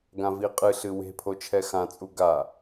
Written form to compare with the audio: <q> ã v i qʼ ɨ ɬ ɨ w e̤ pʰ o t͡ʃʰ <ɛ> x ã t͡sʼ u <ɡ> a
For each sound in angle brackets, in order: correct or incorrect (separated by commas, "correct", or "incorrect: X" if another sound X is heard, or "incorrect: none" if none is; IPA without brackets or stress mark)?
incorrect: ɡ, correct, correct